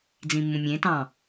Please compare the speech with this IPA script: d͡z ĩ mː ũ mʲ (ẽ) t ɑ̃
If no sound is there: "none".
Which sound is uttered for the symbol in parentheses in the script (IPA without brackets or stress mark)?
ẽ